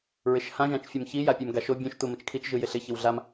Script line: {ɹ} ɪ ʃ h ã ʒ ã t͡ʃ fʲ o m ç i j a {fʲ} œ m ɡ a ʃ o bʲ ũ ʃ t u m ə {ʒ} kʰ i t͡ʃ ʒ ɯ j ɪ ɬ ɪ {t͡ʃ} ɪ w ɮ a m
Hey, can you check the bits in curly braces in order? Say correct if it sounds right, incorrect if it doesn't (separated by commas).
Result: correct, incorrect, incorrect, incorrect